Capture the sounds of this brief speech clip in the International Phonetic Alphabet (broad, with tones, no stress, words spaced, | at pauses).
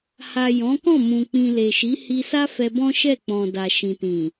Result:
ha˨ jɔ̃˨˦kɔ̃˦˨ mũ˨k͡pĩ˨le˨ʃi˨˦ hi˧sa˦fɛ˧ bɔ̃˦ʃɛ˦˨ k͡pɔ̃˨ da˨ʃĩ˨tĩ˨